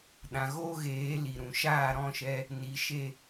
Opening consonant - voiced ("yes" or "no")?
yes